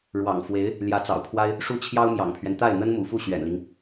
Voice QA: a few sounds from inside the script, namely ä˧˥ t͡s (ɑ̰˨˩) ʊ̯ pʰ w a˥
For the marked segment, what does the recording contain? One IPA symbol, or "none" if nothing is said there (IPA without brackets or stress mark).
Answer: ɑ̰˨˩